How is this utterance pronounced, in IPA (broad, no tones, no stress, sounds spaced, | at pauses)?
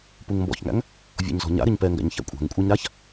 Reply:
p u ŋ m b ɔ̰ ç ŋ æ̰ ŋ | vʲ ɔ̰ ɲ z ɔ̤ ɲ a̰ ɾ ɪ ɲ p ɛ ŋ ɡ æ̰ ɲ ç æ̰ kʷʼ æ̤ ŋ kʷʼ ɛ ɲ ɾ a ç